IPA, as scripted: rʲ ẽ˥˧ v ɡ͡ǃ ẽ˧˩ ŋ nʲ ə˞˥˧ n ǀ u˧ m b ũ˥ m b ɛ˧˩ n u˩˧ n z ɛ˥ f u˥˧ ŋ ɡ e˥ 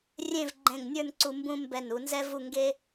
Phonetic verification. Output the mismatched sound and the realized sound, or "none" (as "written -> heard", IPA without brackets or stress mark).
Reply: f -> v